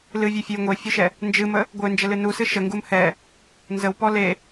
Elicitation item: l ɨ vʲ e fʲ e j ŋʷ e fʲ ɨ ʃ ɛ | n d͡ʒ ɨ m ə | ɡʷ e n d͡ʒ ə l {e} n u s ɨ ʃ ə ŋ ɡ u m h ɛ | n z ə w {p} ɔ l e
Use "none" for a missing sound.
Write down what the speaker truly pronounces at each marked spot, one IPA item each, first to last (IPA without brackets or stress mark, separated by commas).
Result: ɨ, p